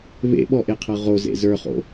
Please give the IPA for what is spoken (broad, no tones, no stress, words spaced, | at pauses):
βḛɓɔʔeqʰɤ ʁozḛ zə˞χo̰